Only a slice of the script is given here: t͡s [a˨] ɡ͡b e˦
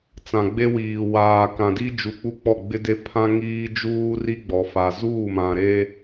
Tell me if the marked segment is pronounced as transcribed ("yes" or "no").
no